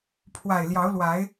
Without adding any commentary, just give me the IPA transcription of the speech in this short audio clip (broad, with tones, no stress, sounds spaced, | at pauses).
pʰ w a˨˩ ɪ̯ l j ɑ˨˦ ʊ̯ l w a˨˦ ɪ̯